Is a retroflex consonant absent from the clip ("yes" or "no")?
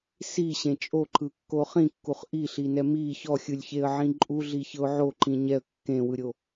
yes